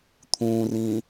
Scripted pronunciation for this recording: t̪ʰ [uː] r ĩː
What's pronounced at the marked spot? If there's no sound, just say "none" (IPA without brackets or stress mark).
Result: ũː